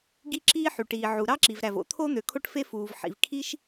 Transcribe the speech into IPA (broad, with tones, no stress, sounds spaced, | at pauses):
ɡ i˥ ǁ iː˥ ħ y˩ ʈ iː˩ ʕ u˩ ɾ ɑ˥ ǁ i˩ v ɾ æ˩ v o̰˥ t̪ʰ o˥ n̪ ø˩ kʰ o˥ ʈ f e˥ f uː˩ v ħ ḭ˩ v kʰ i˥ ʃ